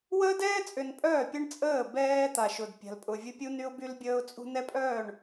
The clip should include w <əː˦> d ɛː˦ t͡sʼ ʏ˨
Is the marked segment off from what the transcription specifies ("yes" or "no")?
no